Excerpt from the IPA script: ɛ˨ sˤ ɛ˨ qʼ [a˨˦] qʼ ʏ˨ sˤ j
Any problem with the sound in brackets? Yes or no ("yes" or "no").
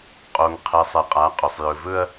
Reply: no